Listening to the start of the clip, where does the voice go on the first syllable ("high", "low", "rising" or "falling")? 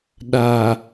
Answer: low